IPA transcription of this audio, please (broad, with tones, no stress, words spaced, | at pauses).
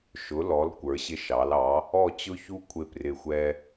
ʃʊ˨˥lɔ˨˥l kʷə˞˨˥ɕɪ˦ʃɑ˨˥lɑ˨˥ | ɔ˦˨t͡ɕʊ˦çu˦ kʷʰɪ˦prɪ˦˨xʷɛ˦